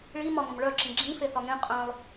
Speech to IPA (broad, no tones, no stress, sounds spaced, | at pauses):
ɭ i m ɒ ŋ ə̃ m ɭ œ ǁ ĩ ɡ͡ǁ ĩ f e θ ɒ ŋ ẽ qʼ œ̃ lˠ